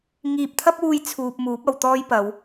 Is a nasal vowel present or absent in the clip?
absent